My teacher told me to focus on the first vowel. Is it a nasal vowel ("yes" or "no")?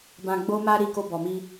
yes